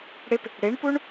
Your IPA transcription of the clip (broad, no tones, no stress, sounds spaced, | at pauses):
ɽ ɪ p | ɽ e ɳ p u ɳ